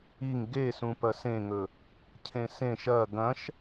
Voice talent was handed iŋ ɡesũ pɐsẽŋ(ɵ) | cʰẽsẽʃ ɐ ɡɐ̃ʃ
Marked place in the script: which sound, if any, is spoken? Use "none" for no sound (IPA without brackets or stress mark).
ɵ